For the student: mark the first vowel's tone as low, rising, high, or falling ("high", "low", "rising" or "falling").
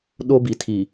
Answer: high